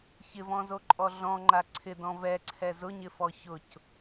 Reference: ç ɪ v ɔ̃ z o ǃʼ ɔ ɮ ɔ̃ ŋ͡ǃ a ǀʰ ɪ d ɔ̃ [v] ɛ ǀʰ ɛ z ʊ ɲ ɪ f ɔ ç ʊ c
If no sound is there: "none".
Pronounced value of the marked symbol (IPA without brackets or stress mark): v